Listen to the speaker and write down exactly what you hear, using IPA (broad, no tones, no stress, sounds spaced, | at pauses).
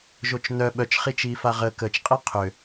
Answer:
ʒ o t͡ʃ n œ ɓ œ t͡ʃ χ i t͡ʃ iː f a ʁ ə k ə t͡ʃ qʼ i qʰ ø